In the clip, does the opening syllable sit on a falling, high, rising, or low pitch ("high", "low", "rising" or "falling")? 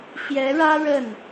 rising